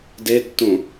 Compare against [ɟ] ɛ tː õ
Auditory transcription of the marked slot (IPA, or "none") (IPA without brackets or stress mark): d